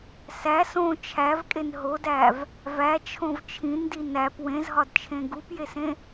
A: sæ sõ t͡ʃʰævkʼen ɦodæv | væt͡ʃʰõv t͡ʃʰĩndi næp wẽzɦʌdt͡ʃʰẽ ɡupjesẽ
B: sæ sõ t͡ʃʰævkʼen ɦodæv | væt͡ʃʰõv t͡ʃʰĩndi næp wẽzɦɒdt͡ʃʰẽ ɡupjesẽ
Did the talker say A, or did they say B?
B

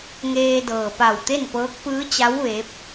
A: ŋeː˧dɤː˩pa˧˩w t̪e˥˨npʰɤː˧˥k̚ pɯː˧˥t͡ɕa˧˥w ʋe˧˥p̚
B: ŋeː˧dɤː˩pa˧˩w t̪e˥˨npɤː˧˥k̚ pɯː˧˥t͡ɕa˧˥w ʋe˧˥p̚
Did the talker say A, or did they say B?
B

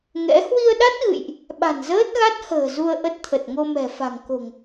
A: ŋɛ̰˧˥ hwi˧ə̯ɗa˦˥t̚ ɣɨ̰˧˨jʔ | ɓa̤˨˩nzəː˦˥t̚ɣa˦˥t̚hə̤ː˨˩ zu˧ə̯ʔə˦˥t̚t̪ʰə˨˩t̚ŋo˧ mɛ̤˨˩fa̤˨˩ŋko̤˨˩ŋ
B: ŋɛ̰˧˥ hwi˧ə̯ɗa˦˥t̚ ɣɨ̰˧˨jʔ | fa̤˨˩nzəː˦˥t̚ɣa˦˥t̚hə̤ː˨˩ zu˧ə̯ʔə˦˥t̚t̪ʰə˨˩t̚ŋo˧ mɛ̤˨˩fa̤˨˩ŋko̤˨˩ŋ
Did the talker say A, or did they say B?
A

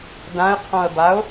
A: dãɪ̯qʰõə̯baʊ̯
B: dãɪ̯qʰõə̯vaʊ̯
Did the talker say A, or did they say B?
A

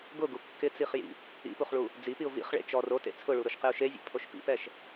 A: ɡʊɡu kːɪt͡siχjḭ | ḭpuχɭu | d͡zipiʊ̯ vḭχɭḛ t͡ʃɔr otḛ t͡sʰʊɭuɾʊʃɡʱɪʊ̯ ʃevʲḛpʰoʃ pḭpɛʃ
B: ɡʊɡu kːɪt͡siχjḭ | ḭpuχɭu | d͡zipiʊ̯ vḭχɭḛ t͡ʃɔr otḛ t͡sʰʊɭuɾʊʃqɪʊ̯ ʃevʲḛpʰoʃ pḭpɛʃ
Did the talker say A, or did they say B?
B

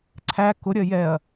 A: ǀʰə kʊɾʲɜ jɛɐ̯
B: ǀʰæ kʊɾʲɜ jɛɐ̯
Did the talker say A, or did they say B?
B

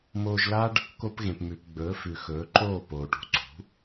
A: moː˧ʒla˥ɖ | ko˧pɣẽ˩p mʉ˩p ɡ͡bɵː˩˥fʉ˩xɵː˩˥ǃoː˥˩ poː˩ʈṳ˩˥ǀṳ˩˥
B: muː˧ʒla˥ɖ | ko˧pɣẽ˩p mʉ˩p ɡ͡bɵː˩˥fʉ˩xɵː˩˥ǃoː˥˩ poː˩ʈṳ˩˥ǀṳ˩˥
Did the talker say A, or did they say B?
A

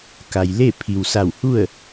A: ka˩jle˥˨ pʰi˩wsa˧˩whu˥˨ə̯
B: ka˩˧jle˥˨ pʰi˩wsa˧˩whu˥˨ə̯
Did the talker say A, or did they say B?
A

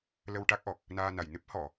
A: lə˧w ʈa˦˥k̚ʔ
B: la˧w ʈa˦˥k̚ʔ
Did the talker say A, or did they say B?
A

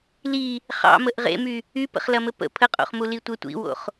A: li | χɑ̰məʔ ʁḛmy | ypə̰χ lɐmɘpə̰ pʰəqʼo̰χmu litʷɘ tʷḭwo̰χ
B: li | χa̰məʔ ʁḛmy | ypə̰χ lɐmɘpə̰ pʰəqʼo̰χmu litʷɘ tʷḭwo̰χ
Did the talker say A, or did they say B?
A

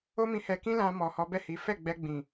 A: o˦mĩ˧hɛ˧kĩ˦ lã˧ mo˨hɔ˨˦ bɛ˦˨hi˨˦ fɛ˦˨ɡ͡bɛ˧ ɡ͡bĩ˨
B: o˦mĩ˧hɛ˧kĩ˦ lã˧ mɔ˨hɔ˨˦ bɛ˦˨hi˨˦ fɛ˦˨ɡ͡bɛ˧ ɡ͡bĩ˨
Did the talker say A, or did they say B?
B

